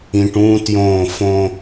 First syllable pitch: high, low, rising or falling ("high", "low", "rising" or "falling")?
low